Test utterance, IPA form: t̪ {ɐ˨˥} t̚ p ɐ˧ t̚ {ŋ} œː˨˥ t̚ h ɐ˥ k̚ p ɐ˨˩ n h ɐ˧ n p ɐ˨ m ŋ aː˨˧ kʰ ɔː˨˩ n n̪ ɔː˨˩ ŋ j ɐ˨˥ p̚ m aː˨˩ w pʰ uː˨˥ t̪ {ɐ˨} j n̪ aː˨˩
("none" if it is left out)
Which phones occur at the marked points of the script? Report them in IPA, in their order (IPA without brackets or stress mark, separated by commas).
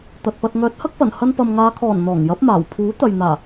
ɐ˨, ŋ, ɐ˨